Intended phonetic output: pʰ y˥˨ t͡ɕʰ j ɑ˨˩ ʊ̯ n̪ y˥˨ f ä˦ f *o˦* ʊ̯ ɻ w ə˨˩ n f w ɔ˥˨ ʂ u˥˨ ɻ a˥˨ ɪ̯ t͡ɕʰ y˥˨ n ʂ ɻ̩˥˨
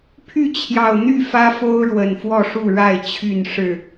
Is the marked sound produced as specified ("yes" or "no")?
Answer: yes